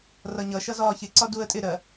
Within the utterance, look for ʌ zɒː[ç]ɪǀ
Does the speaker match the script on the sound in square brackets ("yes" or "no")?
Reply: yes